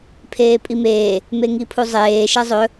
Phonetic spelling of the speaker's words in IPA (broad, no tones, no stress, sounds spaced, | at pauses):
pʰ eː pʼ i m eː | m e ŋ i pʰ u zˤ eː ʃ ɛ zˤ ɵ